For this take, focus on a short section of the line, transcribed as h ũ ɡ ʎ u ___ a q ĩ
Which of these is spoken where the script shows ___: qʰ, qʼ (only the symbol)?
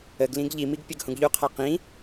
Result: qʰ